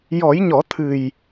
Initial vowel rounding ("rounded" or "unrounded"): rounded